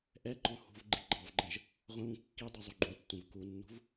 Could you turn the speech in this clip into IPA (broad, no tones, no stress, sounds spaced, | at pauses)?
ʔ ɛ ǃ ɔ̃ h ṳ v ɡ͡ǃ i ɡ͡ǃ ɑ v ɡ͡ǃ ə̃ ʒ | ʁʷ ə̃ β ũ kː i dˤ i zˤ u ɡ͡ǃ ũ tː ũ v k u nː ṳ v